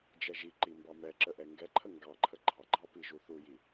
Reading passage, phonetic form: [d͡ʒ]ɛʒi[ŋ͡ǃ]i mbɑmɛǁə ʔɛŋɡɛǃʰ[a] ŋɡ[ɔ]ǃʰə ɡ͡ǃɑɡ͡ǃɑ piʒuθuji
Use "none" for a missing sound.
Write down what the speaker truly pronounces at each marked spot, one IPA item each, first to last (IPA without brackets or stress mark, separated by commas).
d͡ʒ, ǃ, ə, ɑ